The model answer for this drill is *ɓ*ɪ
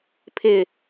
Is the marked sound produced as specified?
no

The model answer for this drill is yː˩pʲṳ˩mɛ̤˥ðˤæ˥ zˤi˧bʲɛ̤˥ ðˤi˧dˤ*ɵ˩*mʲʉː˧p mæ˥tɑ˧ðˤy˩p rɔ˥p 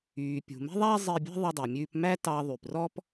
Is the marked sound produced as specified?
yes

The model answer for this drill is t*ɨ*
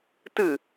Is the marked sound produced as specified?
yes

